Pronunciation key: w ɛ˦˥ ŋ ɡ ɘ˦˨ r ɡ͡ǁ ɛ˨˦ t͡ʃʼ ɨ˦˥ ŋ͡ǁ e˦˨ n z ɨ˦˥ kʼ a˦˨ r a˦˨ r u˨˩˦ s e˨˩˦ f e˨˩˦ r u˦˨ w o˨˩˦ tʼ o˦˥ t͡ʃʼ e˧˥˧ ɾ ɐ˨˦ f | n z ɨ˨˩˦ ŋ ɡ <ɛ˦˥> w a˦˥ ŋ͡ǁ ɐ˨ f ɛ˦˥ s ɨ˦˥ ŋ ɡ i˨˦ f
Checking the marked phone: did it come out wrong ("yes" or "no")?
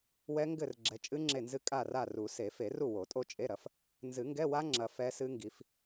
yes